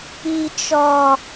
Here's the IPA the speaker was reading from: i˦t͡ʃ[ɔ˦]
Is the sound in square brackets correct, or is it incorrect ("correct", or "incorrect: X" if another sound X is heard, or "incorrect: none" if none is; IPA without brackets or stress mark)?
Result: correct